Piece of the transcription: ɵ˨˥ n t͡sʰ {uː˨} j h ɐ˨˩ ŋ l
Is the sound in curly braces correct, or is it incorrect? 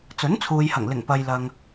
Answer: correct